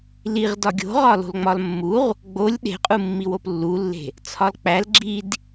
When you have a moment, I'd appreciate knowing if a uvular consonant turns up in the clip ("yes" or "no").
yes